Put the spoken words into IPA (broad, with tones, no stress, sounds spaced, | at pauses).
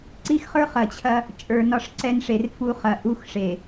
ǀ i˦ x χ ə˞˦ χ ɐ˨ t͡ɕʰ ɐ˦ | t͡ʃʼ ə˞˨ n ɒ˦ ʂ ǀ ɛ˦ n ʂ e˨ r f u˦ χ ɐ˨˦ ʔ u˦ x ʂ e˨